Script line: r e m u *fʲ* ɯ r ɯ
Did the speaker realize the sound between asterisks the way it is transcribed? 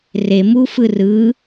no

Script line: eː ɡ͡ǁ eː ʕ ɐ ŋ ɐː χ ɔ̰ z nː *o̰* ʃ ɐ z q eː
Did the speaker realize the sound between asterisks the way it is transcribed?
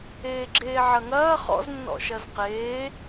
no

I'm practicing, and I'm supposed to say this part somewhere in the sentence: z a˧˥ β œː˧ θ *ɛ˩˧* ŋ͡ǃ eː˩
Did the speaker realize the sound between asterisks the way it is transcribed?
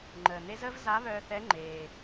no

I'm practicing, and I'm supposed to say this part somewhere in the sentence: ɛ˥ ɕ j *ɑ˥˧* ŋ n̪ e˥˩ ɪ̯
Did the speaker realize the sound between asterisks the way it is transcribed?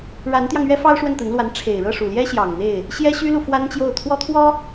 no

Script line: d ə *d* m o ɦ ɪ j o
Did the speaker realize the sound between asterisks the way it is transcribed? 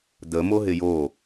no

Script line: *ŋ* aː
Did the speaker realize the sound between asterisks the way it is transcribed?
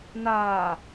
no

